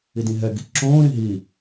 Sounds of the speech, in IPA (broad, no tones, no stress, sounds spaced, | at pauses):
i d ĩ ɦ ɛ ɡ i ǁ õː ɾ ĩ ɦ i